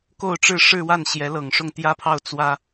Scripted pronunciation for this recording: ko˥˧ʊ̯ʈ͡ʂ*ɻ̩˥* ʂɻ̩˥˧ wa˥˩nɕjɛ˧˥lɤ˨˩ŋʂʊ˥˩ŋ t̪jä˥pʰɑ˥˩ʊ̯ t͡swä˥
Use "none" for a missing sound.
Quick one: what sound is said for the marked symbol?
ɻ̩˥˧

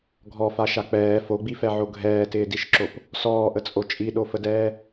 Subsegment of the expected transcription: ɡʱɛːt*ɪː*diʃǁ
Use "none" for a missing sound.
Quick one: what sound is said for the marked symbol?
ɪː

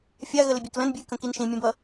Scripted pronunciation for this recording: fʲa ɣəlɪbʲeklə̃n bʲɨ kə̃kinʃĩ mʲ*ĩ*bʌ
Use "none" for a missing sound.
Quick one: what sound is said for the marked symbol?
ẽ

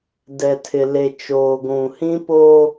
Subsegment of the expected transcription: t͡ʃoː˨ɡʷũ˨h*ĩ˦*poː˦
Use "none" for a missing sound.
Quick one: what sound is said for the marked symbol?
ĩ˦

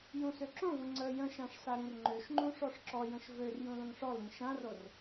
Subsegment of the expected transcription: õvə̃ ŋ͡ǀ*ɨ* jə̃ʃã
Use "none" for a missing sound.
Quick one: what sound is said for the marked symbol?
ə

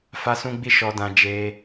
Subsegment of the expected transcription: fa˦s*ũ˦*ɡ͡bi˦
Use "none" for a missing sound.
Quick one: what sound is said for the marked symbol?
ũ˦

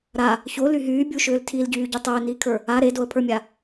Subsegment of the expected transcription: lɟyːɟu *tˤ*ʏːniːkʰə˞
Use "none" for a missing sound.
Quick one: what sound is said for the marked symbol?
tˤ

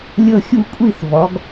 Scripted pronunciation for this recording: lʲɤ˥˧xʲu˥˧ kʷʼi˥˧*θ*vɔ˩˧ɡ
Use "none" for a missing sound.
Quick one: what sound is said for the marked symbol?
θ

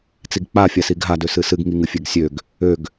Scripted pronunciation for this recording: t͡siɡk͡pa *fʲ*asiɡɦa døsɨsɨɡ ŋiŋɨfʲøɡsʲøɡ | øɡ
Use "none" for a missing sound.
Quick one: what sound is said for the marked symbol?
fʲ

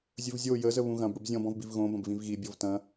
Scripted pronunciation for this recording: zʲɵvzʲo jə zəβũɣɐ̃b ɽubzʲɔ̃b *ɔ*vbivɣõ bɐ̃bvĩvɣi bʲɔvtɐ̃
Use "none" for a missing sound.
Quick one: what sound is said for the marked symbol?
ɔ̃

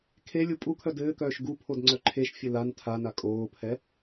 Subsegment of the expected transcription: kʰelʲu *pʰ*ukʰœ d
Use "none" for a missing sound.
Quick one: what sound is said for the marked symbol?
pʼ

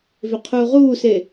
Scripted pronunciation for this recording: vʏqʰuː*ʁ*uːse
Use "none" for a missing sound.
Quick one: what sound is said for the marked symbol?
ʁ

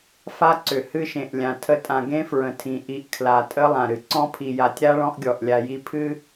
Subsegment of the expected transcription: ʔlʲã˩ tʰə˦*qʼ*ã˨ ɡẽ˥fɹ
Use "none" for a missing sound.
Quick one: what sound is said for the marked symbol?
tʼ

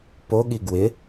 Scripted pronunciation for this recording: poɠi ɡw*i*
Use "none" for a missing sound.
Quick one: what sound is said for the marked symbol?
ɪ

